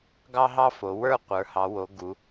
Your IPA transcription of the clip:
ɡ ɑ˥ ɦ ɑ˥ f o˩˧ w ə˞˥˧ qʷ ə˞˩˧ h ɑ˩˧ w o˩˧ ɡ u˩˧

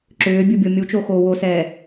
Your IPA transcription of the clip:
ǁ ʏː bʲ u bʲ o mʲ u t͡ʃ o x oː w o s ɛː

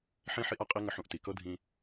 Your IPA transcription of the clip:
ħ ĩ˦ ħ i˦ ʔ a˦ qʼ i˦ ŋ ə˧ ħ ũ˧ ʔ t i˨ k ɤ˦ dʱ ĩ˧

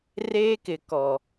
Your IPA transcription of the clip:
r eː˦ k ɪ˨ k ɔ˨

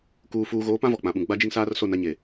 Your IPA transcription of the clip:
k uː˨ f uː˨ ɣ oː˨˦ p ã˦ v ɔ˨ k͡p ã˨ ɓ ũ˨ ɡ͡b a˦ d͡ʒ i˦ ŋ s aː˦ r s o˦˨ n a˦ ɲ e˨

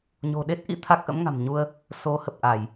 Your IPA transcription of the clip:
ɲ o̤˨˩ ɗ e˦˥ t̚ ʔ ḭ˧˥ t̪ʰ a˦˥ k̚ ʔ ə̰˧˥ m ŋ a̤˨˩ m ɲ u˧ ə̯ | s o˨˦ h ə˨˩ p̚ ʔ a˧˩˨ j

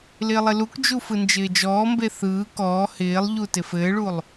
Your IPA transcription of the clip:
l ɪː lˠ ɪ l u k d͡ʒ u f ɯ n d͡ʒ ɪː d͡ʒ ɔː m b e θ ɯː k ɔː h ɪː lˠ ʎ u t ɪ f ɘː ɭ u lˠ

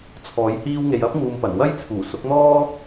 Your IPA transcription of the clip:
t͡sʰ ɔː˨˥ j h iː˥ w ŋ e˧ j ɐ˥ p̚ ŋ uː˨ m p ɐ˨˩ n w ɐ˥ j t͡sʰ uː˨˩ s ʊ˨˥ k̚ n̪ ɔː˥

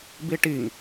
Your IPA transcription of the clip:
b i ʈ i ŋ

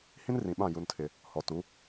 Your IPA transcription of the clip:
h ĩ˦ n r ĩ˨ ɓ ã˦˨ j u˦ n tʰ ɪ˦ | h ɔ˨ t u˨˦

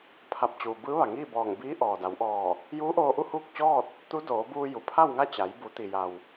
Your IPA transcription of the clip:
pʰ a˧˩ p̚ t͡ɕ uː˩ b ɯː˧˥ ʋ a˩ ŋ iː˥˨ b ɔː˧˩ ŋ b iː˧˥ ʔ ɔː˩ d a˩˧ w ʔ ɔː˧˩ | j uː˧˥ ʔ oː˧ ʔ u˥˨ h uː˥˨ k̚ t͡ɕ ɔː˥˨ t̚ | t̪ u˧˥ d oː˩˧ b uː˧ j u˩ pʰ a˥˨ w ŋ a˥˨ t͡ɕ a˩˧ j b u˩˧ t̪ i˩ j a˩ w

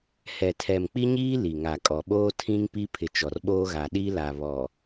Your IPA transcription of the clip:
h ɛ˨ tʰ ɛ˨ m k͡p i˦ ɲ iː˦ l i˨ ŋ a˨ kʼ ɔ˨ ɓ oː˦ tʰ ĩ˦ ŋ p i˦ pʰ ɪ˨ t͡ʃ ɔ˨ r ɓ oː˦ ɣ a˨ ɗ i˦ l a˨ β ɔ˨

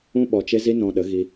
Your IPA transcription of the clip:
ũ˦ ɓ ɔ˧ t͡ʃ e˦ z i˦ n ɔ̃˧ ɗ ə˨˦ ɣ i˧

